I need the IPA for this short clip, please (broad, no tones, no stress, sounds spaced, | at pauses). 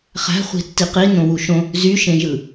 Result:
χ æ̤ χʷ i̤ tː i q i n õ w u ʃ õ | z y ʃ ẽ ʒ ɯ